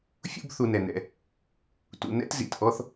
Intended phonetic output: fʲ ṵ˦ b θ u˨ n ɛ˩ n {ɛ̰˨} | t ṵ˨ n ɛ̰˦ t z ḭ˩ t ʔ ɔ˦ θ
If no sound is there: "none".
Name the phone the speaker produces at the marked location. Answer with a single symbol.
ɛ̰˨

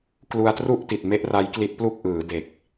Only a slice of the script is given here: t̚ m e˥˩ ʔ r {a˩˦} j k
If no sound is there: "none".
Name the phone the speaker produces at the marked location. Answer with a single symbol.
a˦˥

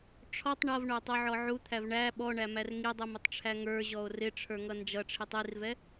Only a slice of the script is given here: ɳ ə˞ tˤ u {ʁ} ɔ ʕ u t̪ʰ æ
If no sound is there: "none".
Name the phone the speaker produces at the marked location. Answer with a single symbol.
ʕ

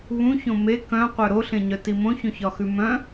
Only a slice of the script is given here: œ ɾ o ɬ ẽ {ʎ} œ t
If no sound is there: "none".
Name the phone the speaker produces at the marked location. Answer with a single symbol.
ɲ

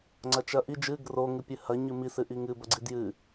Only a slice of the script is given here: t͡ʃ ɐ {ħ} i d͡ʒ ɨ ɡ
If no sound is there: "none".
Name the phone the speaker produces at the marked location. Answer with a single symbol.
ʔ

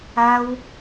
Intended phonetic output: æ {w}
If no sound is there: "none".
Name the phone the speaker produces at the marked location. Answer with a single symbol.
w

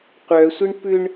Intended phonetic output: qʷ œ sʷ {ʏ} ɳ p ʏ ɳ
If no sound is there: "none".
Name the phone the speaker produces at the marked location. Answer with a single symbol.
ɪ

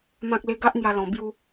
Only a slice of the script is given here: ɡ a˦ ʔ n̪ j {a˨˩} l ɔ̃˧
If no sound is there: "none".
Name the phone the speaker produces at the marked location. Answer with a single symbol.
a˧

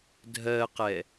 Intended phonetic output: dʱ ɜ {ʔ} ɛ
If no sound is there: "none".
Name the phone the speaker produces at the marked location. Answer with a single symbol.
q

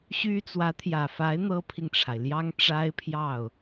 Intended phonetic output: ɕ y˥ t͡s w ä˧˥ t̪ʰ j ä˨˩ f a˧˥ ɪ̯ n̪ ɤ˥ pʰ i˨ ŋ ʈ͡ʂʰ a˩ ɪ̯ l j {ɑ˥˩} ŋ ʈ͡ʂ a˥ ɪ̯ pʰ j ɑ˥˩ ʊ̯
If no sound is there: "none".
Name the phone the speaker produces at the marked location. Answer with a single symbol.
ɑ˥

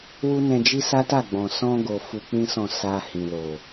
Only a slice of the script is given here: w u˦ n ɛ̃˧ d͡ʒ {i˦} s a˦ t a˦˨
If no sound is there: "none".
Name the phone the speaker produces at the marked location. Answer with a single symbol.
i˦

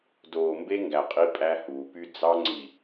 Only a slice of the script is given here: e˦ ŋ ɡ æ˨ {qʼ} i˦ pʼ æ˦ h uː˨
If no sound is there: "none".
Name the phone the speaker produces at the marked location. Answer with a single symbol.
qʼ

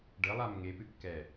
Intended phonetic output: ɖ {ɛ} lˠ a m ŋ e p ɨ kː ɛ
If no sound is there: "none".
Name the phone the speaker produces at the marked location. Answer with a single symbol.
ɘ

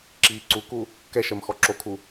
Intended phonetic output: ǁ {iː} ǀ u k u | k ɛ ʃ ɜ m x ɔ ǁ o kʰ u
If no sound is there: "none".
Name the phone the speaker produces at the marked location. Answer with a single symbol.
iː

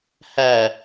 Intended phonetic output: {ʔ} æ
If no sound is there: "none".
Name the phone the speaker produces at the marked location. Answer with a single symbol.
h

